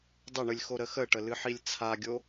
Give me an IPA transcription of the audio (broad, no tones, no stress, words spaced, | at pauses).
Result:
dˤəɳɨlʲ xoɾəxəʈə lɨħilʲt͡sʰaɡʲo